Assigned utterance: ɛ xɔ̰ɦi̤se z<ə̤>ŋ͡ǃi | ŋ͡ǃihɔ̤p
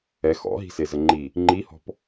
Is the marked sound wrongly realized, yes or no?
yes